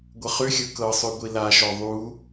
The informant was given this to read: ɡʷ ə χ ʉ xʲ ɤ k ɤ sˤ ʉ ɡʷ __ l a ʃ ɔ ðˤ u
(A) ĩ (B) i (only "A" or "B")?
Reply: B